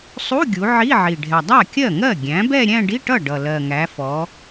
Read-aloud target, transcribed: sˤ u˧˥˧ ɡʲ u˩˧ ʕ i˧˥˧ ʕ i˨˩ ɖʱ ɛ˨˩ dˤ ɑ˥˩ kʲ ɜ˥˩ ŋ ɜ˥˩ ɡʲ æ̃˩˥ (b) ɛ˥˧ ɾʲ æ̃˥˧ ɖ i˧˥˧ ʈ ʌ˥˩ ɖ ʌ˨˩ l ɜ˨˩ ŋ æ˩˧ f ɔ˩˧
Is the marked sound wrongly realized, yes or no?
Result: no